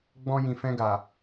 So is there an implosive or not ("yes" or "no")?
no